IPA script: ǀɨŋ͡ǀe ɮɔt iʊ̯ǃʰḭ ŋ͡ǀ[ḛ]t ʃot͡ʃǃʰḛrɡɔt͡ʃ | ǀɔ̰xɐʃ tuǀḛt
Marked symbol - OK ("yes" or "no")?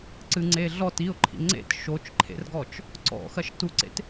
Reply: yes